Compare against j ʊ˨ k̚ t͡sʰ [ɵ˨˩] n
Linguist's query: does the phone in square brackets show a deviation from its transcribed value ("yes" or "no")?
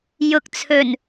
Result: no